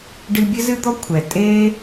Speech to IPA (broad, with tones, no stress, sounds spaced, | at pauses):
ɖ ɨ˧ bʲ ɘ˦ z ɨ˦ d̪ ɔ˦ kʷʰ ɛ˨ tʼ e˦